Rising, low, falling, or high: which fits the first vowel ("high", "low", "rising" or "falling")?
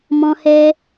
high